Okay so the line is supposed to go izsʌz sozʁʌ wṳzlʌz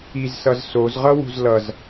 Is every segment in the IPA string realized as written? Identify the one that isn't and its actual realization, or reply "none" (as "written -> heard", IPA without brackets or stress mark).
none